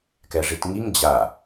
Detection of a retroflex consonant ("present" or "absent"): present